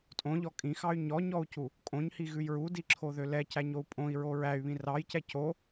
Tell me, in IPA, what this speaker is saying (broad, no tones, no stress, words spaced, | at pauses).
tʼõʎɔ kʼĩxɑy̯ ɲɔɲɔu̯cu | kʼõɲhiɣʉj ɹudiǁʰoðø lɛcæɲou̯ pʼõi̯ɹo ɹæy̯βĩ rɑjcɛ co